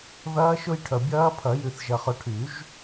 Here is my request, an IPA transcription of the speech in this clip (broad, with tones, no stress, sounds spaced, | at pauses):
ð ɐː˦˥ ʃ ʊ˦˥ j ʈʰ œ˨ bʲ ɐː˦˥ pʰ ɐ˨˩˦ j y˨ θ ʒ ɐ˨ χ ʊ˨ ʈʰ y˨˩˦ ʒ